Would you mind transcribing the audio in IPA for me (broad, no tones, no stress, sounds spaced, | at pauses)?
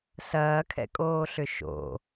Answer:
s ɐː kʰ ɛ̰ kʼ oː ɬ ʏ ʃ o̰